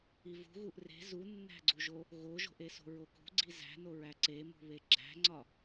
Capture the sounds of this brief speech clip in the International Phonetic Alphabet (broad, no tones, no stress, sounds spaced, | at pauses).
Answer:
i v ṳ ɣ u ʔ r e̤ z u nː æ̤ ɡ͡ǀ u ʒ o | ɣ o ʒ o̤ ʔ e s o̤ ɹ o k ṳ ɡ͡ǀ i z æ̤ n o ɹ æ ǀ e m ṳ β e ɡ͡ǁ æ̤ ŋ͡ǀ ɒ